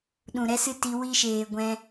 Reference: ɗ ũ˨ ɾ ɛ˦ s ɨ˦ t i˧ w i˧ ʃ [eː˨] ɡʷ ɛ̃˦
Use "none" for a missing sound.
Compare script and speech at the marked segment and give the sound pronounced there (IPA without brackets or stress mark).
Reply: eː˨